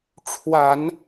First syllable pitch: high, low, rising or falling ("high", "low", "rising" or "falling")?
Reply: low